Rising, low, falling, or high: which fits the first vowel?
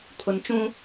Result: low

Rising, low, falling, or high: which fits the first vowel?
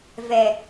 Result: low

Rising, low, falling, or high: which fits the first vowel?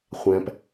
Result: low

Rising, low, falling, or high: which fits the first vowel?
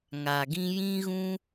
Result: low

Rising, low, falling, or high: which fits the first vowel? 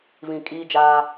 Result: low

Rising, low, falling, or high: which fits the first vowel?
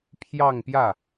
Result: falling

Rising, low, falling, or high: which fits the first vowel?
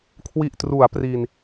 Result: low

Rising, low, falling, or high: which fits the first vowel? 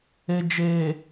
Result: low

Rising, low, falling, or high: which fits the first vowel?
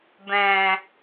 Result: low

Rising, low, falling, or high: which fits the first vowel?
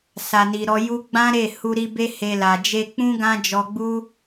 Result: low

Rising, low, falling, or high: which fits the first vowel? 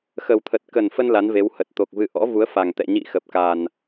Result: low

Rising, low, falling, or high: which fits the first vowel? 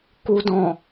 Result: low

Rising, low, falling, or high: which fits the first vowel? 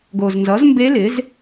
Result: low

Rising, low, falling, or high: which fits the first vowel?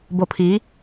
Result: low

